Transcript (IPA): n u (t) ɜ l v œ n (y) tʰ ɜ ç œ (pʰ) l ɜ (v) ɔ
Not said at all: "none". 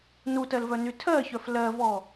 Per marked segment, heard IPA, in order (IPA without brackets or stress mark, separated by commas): t, y, f, v